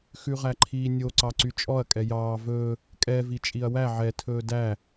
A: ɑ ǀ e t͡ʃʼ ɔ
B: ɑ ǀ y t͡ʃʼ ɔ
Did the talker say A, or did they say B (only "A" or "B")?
B